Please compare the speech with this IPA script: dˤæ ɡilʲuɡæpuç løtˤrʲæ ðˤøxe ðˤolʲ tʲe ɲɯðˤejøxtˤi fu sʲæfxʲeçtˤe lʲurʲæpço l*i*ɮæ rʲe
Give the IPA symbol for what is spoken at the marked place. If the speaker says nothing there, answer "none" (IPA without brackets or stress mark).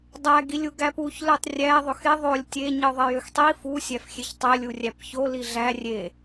i